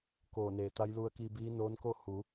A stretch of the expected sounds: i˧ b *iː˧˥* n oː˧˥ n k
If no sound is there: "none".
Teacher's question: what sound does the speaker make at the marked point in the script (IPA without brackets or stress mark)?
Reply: iː˧˥